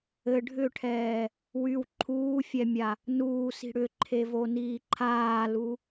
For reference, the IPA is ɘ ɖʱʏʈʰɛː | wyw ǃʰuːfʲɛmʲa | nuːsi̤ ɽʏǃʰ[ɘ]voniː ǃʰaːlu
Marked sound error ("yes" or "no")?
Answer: yes